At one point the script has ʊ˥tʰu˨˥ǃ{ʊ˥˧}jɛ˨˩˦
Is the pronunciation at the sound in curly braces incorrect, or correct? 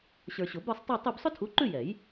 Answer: incorrect